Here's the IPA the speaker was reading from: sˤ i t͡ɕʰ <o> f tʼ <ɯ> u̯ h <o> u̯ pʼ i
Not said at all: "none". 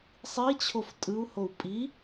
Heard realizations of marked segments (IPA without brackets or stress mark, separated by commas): o, ɯ, o